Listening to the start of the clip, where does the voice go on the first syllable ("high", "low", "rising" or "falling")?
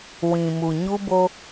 low